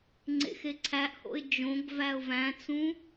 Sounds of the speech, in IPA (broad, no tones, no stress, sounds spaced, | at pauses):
ŋ͡ǀ ḛ x e ǀʰ æ ʔ h o̰ ɪ̯ d͡ʒ õ ɡ v æ ʊ̯ v æ̃ t͡s ũ